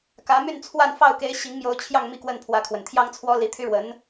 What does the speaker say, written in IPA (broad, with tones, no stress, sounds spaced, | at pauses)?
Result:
k ä˧˥ m y˥˧ n t͡sʰ w a˥˧ n f ɑ˥˩ ʊ̯ k e˧˥ ɪ̯ ɕ i˧˥ ŋ m j o˧˥ ʊ̯ t͡ɕʰ j ɑ˥˧ ŋ m i˥˧ k w ə˥˩ n pʰ w ä˧˥ kʰ w ə˨˩ n t̪ʰ j ɑ˥ ŋ t͡sʰ w ɔ˥ l i˧˥ t̪ʰ y˥ ɻ w ə˧˥ n